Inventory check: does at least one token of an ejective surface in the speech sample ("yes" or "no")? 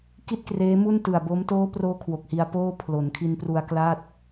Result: no